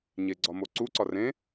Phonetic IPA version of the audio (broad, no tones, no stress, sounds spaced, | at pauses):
ɲ e ɡ͡ǀ ɒ m o ǀ u ǀ ɒ r ẽ